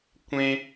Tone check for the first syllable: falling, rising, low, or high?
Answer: high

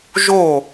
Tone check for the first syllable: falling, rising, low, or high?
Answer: falling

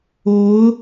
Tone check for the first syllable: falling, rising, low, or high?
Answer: rising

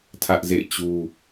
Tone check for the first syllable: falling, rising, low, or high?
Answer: high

